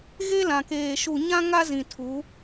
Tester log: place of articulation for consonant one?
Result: velar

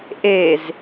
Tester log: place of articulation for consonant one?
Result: glottal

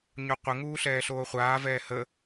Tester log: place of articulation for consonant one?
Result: palatal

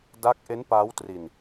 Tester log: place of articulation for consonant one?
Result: alveolar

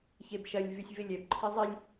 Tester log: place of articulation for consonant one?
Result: palatal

